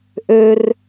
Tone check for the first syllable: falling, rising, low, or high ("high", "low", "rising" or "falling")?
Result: high